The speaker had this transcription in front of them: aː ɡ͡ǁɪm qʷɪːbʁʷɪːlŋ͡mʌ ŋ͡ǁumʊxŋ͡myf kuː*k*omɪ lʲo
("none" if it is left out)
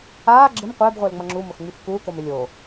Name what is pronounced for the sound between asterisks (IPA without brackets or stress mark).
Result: k